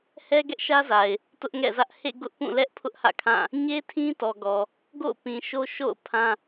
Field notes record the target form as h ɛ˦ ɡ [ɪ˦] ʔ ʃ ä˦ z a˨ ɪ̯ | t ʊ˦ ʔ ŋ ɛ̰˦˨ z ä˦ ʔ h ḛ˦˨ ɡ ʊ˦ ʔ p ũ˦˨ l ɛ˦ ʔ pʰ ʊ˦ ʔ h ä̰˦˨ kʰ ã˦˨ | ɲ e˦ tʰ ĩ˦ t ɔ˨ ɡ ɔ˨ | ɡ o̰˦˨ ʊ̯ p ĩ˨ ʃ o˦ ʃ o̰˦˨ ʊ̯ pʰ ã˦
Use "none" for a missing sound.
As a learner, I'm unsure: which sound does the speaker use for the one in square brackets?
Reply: ɛ˦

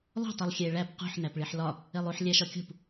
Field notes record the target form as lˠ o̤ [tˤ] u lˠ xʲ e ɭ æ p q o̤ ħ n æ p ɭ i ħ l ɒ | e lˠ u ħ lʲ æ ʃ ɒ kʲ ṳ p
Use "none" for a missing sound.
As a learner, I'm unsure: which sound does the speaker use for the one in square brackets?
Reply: tˤ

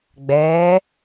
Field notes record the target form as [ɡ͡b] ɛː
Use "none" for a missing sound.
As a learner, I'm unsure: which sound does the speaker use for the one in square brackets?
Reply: ɡ͡b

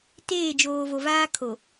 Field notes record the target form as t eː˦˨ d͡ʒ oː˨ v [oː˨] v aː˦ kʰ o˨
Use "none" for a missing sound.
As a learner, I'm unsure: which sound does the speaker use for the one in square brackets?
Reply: o˨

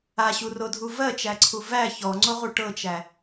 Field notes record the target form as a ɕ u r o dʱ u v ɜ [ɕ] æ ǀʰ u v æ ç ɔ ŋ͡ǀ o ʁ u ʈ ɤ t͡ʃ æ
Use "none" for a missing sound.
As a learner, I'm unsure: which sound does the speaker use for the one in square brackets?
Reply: t͡ʃ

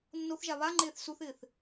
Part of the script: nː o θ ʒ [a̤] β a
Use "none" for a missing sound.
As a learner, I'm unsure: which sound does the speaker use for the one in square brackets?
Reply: a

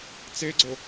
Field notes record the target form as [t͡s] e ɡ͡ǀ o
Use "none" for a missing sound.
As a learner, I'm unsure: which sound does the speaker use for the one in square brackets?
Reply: t͡s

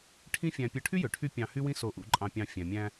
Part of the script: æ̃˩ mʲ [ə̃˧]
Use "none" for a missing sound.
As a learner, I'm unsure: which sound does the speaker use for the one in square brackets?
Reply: æ̃˧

